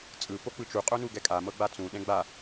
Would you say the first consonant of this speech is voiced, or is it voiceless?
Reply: voiceless